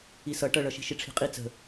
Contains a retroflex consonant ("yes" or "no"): yes